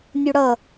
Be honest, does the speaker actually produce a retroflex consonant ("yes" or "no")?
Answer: yes